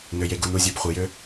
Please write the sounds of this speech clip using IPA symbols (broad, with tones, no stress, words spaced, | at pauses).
nø˨je˨ɡu˨n u˨zʲø˨b χʷi˨jø˦